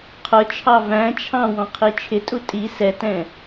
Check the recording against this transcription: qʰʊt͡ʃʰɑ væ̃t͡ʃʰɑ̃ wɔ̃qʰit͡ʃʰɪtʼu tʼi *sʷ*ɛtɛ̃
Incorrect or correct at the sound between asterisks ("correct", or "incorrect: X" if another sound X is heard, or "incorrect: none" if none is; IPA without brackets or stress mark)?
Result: incorrect: s